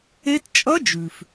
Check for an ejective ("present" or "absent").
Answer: present